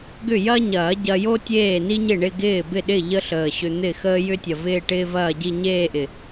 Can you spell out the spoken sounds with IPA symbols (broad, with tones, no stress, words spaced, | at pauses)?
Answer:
ɡʏ˥˩jɐ˥ɲɐː˨˩˦ ɟɐ˧jo˥ tʲeː˥˩ni˥ɲɪ˥˩ ɳɪ˥˧ɡɪː˥˩ bɪ˥˩ɗɪ˥˩ ʎə˥ɬəː˨˩ɕʏ˧ n̪ɪ˥˩ xəː˥jʏ˥tʲɐ˨˩ vɪː˥˧ʈɪː˥vɐː˥˧ɟi˥˧ ɲeː˥˧ʔɪ˨˩